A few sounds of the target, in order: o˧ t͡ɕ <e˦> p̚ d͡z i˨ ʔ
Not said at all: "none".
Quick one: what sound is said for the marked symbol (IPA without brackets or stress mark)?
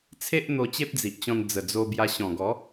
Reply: e˦